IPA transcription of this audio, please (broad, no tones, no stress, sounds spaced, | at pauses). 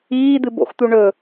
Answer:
iː d̪ ɨ b o̰ x t̪ u ɳ ɵ